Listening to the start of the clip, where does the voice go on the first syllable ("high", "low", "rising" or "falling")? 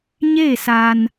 falling